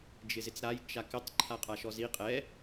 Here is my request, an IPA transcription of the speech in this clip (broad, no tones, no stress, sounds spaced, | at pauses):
d͡ʒ ɪ z ɪ t͡s ɾ a j t͡ʃ a k ɪ tˤ ǃʰ a qʼ a ʃ ɔ z i qʼ ɛ